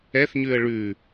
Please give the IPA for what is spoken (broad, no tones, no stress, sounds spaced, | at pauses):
ɛ θ ɲ ʉ ə̯ ɭ ʉ